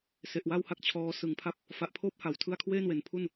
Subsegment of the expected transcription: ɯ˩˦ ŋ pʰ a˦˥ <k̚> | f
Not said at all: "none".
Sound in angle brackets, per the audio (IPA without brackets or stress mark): p̚